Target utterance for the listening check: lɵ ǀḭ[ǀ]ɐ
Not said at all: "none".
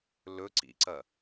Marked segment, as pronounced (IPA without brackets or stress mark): ǀ